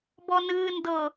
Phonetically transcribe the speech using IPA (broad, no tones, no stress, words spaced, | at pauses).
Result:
bɔnɨː ndɤ